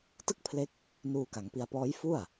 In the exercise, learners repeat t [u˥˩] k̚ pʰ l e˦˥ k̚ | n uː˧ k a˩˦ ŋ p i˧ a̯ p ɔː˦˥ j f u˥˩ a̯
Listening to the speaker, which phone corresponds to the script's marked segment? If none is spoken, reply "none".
ɯ˥˩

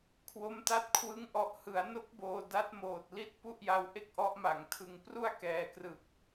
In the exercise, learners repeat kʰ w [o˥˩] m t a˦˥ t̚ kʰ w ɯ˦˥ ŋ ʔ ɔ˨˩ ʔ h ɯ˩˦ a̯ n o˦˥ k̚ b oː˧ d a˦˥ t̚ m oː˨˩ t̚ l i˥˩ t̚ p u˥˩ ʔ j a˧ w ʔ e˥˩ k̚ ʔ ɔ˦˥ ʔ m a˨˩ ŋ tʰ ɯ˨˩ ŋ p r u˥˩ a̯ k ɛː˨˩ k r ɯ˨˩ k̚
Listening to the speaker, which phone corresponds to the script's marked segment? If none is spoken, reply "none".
o˦˥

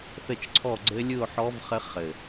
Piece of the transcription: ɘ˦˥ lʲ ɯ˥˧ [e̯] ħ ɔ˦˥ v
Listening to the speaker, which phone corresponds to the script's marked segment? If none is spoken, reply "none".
o̯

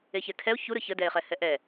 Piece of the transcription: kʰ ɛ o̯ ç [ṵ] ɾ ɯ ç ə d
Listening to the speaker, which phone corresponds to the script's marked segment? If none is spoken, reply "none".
u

